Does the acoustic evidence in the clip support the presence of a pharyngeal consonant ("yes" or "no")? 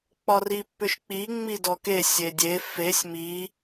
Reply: no